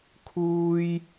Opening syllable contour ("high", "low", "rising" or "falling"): high